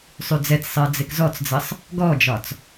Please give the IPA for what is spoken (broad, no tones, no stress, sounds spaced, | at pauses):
sˤ y d͡z ɛ t͡s sˤ ɪ ɐ̯ d͡z ɪ k z ɔ t͡s d͡z ɘ sˤ | ɡ ɔ d͡ʒ ɒ t͡s